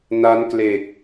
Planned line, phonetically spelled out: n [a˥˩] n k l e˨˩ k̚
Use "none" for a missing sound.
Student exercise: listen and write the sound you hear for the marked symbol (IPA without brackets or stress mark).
a˦˥